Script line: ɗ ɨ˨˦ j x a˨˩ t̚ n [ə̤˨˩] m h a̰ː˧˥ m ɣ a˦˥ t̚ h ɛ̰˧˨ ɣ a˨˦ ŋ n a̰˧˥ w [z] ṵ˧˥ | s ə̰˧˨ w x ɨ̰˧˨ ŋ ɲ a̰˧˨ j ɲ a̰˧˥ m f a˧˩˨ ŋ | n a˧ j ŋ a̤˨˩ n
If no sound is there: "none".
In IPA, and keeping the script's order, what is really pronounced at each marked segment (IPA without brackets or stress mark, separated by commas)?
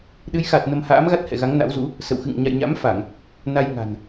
ə˧, z